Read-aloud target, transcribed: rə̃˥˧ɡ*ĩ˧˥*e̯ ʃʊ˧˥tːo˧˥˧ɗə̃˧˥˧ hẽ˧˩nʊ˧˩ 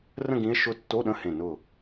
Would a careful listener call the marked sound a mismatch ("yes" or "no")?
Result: no